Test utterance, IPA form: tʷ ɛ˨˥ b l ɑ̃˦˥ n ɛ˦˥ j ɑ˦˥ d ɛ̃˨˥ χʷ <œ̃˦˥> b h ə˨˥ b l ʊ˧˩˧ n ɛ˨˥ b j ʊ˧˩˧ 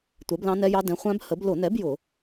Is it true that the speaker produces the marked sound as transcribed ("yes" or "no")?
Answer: no